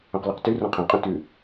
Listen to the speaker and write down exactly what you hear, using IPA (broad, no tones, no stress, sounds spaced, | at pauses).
õ q l ʉ q t ʉ r ɔ̃ qʰ ɛ̃ qʼ õ t ʉ